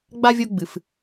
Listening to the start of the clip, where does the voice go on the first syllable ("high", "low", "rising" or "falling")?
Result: high